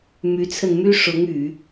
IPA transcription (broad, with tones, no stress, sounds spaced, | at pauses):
m y˧˥ t͡sʰ ə˧ n m y˥ ʂ ʊ˧˥ ŋ y˨˩˦